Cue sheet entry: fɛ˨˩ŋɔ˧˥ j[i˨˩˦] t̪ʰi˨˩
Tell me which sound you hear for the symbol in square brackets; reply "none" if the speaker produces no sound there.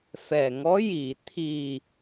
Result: i˨˩˨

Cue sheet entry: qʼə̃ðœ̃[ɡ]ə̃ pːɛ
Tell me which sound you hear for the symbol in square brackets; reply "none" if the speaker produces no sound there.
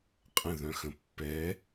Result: x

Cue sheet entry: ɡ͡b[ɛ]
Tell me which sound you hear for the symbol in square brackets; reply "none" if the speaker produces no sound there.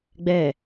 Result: ɛ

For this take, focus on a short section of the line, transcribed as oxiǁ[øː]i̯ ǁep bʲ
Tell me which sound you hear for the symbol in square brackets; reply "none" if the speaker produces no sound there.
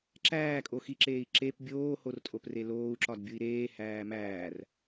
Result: eː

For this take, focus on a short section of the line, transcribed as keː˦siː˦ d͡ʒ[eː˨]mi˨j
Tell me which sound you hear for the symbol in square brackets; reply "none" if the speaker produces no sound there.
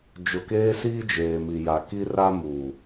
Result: eː˨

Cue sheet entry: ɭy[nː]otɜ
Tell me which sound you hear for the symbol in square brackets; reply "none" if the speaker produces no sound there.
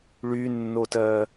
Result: nː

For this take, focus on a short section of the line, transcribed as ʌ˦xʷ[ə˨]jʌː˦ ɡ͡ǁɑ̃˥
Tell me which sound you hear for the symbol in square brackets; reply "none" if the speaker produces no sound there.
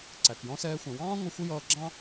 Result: ə˥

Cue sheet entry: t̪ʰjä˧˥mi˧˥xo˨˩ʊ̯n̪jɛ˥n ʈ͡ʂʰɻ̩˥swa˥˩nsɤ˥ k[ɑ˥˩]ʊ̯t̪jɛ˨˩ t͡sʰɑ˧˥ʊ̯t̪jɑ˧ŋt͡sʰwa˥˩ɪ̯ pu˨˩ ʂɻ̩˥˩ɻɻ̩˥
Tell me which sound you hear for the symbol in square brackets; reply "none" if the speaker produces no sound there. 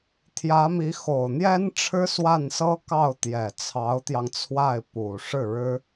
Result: ɑ˥˩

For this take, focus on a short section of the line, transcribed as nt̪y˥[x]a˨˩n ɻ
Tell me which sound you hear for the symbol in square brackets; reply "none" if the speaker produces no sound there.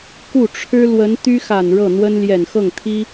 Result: x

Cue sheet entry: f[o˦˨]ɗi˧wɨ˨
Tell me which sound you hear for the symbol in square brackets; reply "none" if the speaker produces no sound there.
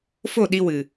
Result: o˦˨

